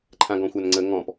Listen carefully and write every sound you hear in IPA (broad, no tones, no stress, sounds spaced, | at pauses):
ǃʰ ã ɡ ɔ̃ xʷ a n ŋ͡ǀ ə ŋ ɔ̃ p